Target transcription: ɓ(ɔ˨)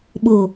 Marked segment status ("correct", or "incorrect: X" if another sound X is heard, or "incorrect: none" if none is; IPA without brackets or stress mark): incorrect: o˨